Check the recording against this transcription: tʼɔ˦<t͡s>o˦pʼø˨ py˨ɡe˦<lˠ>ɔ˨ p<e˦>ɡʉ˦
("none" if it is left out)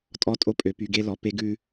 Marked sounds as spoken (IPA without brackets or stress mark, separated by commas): tʼ, l, e˦